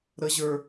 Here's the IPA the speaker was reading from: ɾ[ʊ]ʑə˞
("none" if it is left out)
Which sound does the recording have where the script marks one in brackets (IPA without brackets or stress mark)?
ə